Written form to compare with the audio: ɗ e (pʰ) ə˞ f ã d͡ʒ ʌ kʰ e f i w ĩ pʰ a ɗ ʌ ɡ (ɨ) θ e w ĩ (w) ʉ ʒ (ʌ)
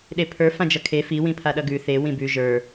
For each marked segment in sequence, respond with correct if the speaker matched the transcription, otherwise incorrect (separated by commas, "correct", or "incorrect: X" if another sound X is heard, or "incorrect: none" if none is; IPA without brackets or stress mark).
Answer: correct, incorrect: ʉ, incorrect: b, incorrect: ə˞